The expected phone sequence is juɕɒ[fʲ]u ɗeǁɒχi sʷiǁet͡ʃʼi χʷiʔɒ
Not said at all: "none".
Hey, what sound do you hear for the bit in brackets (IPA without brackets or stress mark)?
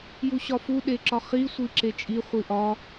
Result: f